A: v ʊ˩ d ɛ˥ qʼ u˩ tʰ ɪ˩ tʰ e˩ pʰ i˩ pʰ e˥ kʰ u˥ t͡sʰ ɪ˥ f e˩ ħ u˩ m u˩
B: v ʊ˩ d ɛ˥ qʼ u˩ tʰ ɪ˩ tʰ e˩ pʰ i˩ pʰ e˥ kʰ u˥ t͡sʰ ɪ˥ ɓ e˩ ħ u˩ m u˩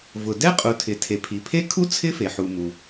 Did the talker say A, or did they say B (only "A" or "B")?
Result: A